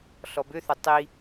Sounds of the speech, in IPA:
ɬ ɔ b ʏ θ œ tˤ i

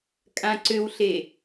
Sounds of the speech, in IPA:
kʼ ã ǀ ʏ w ɬ e

